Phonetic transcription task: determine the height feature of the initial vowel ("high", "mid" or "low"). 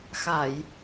low